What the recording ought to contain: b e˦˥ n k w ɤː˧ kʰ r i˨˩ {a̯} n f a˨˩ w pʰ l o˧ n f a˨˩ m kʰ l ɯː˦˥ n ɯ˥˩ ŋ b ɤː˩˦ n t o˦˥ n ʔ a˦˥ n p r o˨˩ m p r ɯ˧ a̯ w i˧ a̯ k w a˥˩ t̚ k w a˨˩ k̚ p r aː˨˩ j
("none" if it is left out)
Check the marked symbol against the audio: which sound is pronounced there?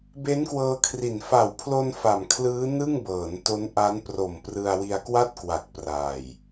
none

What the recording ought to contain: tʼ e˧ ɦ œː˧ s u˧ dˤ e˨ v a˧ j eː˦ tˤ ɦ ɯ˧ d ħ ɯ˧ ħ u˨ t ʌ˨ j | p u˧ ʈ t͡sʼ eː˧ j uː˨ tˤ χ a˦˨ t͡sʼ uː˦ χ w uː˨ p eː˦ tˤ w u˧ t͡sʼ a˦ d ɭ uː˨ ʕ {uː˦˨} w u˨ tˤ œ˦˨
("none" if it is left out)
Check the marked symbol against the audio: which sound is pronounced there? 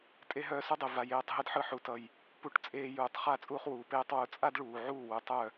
uː˦˨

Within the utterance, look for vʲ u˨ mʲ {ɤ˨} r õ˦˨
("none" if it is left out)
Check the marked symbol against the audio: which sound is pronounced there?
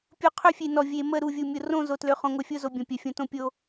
o˨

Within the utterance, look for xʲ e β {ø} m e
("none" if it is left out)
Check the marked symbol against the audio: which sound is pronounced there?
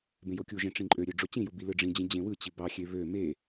ø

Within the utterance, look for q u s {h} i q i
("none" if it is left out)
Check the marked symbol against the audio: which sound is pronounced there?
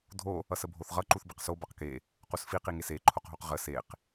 f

